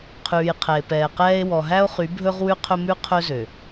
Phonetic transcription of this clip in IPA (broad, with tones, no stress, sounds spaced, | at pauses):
qʰ ʉː˨ j qʰ ɛ˨ e̯ p ɛː˨ q ɛː˦ e̯ w ɔ˨ ɦ æ˦ o̯ χ y˨˦ bʱ ɵ˦ ʁ w ʉ˦ qʰ ɵ˦ m ʉ˦ qʰ ɵ˦ z ø˨